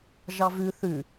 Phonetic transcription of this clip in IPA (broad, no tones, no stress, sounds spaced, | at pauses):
ʒ ɑ v ʉ θ ʉ